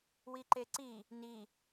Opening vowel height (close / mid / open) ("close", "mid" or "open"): close